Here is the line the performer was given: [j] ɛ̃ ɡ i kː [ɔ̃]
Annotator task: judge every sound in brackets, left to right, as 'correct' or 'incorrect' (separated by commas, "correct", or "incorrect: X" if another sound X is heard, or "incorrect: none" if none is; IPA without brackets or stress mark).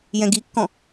correct, correct